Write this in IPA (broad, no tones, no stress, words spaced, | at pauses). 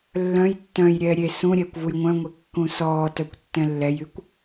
lːœ̃j tːœ̃jɾʲɛː ɾʲe sũɾʲɛːkʷ vujŋʷœ̃ŋʷe kːũsɔːtœkʷ tːɛ̃lːɛjykʷ